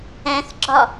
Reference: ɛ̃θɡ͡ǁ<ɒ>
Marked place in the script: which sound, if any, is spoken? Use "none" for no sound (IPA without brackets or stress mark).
ɒ